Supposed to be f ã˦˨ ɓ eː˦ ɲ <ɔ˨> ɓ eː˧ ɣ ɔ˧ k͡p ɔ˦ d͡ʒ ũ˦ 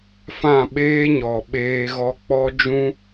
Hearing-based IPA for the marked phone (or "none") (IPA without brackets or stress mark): ɔ˨